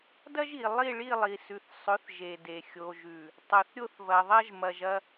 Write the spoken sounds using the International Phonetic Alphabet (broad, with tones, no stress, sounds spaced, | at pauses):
d ɐ˦ ʒ i˨ lˠ i˦˨ ɭ i˦˨ lˠ i˨ s ʉ˨ θ sˤ ɵ˨˦ θ ʒ e˨ d e˨ xʲ o˨ ʒ ʉ˨ | tˤ ɵ˨ θ ɾʲ o˦ θ v ɐ˨ ðˤ ɐ˦ ʒ m ɐ˨ ʒ ɐ˦